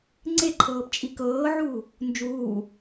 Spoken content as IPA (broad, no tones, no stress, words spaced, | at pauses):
ŋ͡ǀeǃʰɤːp t͡ʃʼikɤːʕuː | nd͡ʒuː